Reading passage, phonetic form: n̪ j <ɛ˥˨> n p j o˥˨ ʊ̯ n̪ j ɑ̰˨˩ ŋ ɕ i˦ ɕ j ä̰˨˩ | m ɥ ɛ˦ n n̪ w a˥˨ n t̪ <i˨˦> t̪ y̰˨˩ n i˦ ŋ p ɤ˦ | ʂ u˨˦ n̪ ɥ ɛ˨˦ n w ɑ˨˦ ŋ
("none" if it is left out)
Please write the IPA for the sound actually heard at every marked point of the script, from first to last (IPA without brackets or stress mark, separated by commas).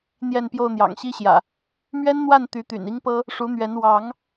ɛ˥˨, y˨˦